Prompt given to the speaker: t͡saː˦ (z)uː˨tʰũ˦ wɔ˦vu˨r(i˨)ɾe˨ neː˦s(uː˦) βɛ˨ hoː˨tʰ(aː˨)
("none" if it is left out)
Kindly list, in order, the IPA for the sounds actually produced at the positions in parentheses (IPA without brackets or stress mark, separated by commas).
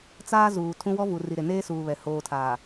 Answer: z, i˨, uː˨, aː˨